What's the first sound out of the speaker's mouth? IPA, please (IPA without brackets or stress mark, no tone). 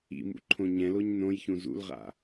ḭ